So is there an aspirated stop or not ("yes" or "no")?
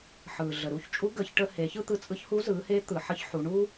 no